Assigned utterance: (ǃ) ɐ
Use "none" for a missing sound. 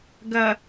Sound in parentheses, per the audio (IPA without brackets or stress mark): ɡ